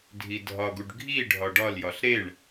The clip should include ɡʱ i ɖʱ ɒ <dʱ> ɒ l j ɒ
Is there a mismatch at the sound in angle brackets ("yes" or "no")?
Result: yes